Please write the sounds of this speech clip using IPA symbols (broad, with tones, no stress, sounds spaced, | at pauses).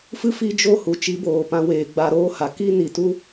f ɨ˦ f i˦ d͡ʒ o˦ h u˨ t͡ʃ i˨˦ b oː˨ p ã˧ w eː˨ ɡ͡b a˧ ɾ oː˦ h a˨ k i˦ n i˨ t u˦